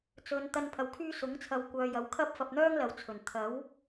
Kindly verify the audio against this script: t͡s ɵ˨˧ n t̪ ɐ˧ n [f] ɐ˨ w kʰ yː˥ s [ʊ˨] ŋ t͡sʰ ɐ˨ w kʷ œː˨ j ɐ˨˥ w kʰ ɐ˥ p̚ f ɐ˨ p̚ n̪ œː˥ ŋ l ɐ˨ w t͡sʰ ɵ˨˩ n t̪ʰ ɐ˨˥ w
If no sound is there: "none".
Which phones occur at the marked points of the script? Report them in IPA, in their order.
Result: pʰ, ʊ˨˥

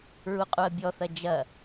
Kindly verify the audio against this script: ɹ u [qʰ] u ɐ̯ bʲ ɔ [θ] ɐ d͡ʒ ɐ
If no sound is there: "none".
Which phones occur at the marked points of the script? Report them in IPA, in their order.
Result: qʼ, θ

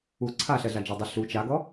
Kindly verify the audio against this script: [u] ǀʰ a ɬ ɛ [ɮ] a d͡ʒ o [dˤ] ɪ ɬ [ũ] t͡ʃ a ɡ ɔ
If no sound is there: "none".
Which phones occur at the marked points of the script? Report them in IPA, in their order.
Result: u, ɮ, dˤ, u

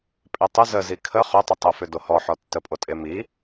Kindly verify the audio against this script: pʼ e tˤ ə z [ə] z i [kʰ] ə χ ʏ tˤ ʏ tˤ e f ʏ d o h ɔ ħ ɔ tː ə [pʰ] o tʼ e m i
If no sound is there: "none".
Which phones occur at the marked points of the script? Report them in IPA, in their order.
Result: ə, kʰ, pʼ

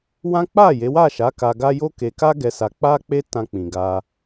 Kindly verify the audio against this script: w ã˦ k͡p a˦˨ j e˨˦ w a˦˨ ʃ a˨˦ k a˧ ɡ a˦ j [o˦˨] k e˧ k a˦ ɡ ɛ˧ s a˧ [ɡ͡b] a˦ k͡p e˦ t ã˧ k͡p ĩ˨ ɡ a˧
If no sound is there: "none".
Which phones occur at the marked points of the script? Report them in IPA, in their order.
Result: o˦, k͡p

